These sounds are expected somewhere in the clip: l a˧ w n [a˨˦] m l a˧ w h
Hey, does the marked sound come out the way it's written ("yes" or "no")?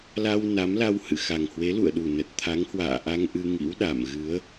yes